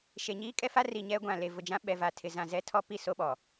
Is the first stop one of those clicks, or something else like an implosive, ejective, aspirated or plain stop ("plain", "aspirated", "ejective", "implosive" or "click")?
ejective